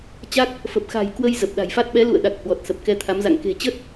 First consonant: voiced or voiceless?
voiceless